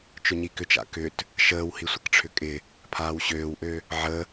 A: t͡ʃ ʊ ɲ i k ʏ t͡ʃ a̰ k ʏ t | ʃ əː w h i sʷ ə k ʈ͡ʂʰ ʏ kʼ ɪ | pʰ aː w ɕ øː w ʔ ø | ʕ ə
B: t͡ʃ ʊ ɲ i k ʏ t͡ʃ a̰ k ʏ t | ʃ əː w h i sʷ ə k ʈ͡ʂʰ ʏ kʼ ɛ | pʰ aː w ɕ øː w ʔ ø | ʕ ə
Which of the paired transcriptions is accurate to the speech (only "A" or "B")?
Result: A